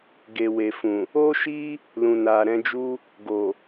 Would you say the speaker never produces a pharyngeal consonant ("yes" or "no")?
yes